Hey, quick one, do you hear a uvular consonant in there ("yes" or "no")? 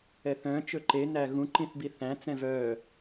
no